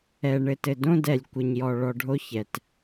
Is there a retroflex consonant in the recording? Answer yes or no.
yes